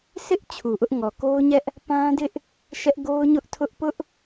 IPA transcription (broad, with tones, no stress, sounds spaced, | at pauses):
sʰ ɪ˦ ʔ t͡ɕʰ u˨ ʔ ʊ˦ ʔ ŋ ɔ˨ k o˦ ʊ̯ ɲ ɛ˦ ʔ | p ã˦ d ɪ˦ ʔ | ʃ ɛ˦ ʔ ɡ o˦ ʊ̯ ɲ ʊ˦ ʔ tʰ ʊ˦ ʔ p ʊ˦ ʔ